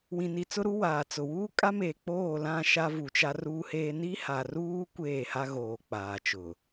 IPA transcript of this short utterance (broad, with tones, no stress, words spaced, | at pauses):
wĩ˨ni˨t͡sʊ˦ɾu˦ waː˨t͡sʊ˨ wuː˦kʼa˦meː˨ k͡poː˦˨lã˦˨ ʃa˦vu˨t͡ʃa˦ ruː˦heː˦ ni˦ha˨ruː˦ kʷeː˦˨ha˦ɣoː˨ k͡paː˨t͡ʃʊ˨